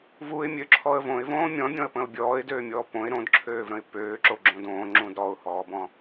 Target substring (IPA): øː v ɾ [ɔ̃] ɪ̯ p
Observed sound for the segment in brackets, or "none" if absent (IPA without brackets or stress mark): ə̃